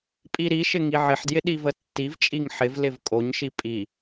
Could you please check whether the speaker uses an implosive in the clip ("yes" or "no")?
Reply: yes